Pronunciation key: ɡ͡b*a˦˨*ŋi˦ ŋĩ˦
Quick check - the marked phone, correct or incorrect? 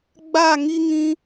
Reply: correct